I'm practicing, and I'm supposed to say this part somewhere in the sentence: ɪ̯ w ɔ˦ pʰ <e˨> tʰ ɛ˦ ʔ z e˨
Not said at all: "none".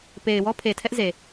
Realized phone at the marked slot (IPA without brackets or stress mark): e˨